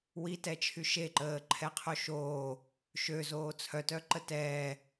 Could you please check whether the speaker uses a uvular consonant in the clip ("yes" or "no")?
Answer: yes